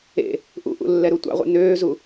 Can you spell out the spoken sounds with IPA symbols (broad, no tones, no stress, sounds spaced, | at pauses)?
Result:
ḛ | ʔ ṵ ʔ ṵ lː ɛ ɾ u tʷ ɑ̰ ʁʷ ɛ̰ n øː z u